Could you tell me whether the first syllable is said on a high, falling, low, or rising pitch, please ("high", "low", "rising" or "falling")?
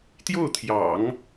falling